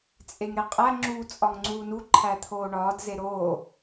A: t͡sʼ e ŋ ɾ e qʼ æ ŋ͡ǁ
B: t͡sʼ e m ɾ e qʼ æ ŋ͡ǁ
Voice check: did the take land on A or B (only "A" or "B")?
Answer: A